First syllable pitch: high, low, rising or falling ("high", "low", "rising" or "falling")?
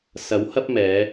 rising